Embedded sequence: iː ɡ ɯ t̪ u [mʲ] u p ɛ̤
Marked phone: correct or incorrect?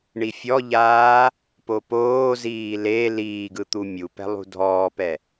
correct